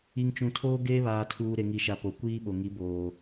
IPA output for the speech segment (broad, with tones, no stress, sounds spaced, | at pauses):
i˨ ŋ t͡ʃ ũ˨ tʰ oː˦ ɡ eː˦ β aː˨ tʰ uː˨ ɾ e˨ ŋ i˨ ʃ a˨ p o˨ kʷ iː˦ ɓ o˨ ŋ i˨˦ b oː˨